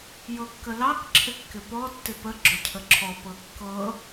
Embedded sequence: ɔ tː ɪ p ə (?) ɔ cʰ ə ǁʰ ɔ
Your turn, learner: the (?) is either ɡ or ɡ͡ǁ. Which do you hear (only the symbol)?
ɡ͡ǁ